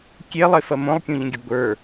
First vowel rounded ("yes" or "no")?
no